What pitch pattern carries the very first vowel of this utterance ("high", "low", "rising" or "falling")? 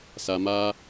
low